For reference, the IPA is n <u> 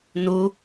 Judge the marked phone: correct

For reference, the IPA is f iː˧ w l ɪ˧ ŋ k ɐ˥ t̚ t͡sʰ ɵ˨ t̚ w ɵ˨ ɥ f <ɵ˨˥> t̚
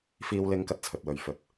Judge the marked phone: incorrect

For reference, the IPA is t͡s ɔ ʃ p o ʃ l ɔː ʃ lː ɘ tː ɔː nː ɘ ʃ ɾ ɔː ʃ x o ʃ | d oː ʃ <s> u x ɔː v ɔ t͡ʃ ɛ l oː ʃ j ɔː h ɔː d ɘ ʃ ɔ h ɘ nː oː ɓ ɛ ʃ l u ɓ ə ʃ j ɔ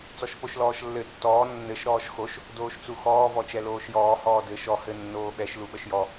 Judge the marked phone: incorrect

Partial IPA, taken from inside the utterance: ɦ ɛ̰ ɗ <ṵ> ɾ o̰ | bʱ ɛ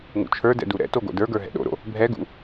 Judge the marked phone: incorrect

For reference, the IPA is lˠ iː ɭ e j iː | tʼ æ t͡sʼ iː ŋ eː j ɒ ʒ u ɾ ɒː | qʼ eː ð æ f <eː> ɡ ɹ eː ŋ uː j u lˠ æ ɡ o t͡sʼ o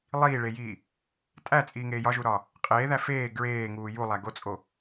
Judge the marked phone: correct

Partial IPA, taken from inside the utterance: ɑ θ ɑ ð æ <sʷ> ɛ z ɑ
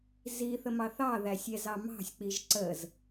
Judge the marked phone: incorrect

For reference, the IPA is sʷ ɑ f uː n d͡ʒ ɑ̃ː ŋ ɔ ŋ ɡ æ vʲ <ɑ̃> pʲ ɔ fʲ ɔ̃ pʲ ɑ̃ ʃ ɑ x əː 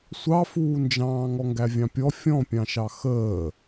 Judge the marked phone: correct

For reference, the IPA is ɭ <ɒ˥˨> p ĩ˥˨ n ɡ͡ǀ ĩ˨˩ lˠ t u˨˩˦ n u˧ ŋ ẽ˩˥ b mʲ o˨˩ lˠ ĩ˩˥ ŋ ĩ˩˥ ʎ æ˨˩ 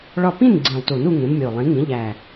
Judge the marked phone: correct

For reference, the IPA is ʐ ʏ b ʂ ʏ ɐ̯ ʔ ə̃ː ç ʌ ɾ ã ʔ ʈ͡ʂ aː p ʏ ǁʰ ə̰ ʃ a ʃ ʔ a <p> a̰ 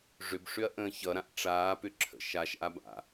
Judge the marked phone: incorrect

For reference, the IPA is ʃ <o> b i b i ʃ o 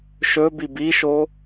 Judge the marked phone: incorrect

